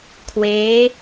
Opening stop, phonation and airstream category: aspirated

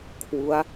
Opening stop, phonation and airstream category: aspirated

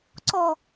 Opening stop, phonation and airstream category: click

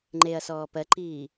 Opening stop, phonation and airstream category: click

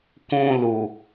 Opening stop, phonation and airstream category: plain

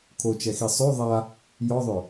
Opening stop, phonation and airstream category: aspirated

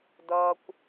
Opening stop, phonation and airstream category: plain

